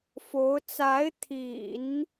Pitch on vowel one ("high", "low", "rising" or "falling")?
rising